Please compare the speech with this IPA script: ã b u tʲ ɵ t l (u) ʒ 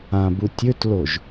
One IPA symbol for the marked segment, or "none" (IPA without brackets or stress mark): o